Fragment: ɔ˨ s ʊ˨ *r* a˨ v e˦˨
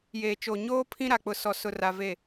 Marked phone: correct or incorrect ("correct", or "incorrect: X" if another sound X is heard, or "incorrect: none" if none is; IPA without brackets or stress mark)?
correct